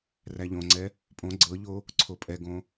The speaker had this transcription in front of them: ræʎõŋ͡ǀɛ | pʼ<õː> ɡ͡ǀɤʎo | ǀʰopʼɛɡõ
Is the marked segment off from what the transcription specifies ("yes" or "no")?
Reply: yes